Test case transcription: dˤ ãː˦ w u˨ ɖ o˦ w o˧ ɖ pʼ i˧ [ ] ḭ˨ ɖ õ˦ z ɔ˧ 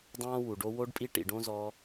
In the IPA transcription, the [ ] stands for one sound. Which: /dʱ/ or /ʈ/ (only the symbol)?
ʈ